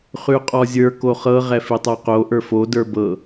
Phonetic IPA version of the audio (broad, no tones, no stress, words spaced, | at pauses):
χʉqʼɔzʲə˞ koχɤ ʁɛfitˤoqo ʔə˞fo də˞bɤ